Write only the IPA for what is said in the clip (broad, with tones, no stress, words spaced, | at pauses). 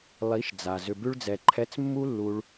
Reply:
lˠi˨˦ʃd͡za˨ zʏ˨bʉ˧ɭd͡zɛ˨ ǃʰɛ˧t͡smːu˦lːu˧ɭ